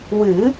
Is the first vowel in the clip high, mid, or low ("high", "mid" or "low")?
high